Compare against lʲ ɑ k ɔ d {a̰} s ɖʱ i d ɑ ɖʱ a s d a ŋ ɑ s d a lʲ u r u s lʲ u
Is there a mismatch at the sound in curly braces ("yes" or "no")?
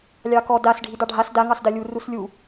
yes